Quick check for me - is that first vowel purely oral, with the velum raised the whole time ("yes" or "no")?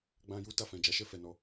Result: no